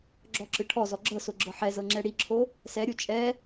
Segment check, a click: present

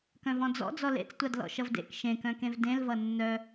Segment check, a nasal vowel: present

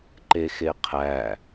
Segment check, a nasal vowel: absent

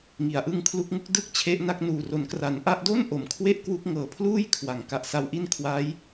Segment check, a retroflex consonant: absent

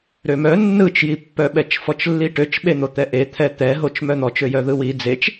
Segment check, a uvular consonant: absent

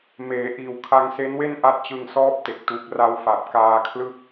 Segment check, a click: absent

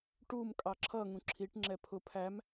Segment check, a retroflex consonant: present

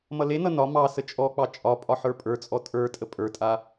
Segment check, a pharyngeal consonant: present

